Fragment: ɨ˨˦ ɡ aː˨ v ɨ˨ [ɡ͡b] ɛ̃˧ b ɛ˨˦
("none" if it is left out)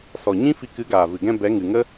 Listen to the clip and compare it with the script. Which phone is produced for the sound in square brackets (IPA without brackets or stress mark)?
ɡ